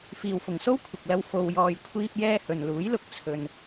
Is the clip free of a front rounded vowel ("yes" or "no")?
yes